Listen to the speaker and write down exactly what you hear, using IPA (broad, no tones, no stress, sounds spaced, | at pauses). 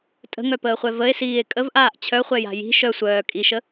tʼ ə̤ ŋ œ p əː χʷ ɛ v ə e̯ s iː e̯ kʼ ə v ʔ aː ʔ t͡ɕʰ œ χʷ ɛ j a̤ j i̤ ʃ œ sʷ œː kʼ i ʃ ə